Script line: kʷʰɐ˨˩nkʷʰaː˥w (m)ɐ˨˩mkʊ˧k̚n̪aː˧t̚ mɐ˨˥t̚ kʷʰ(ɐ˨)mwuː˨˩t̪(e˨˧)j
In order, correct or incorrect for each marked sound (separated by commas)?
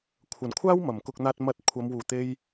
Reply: correct, incorrect, incorrect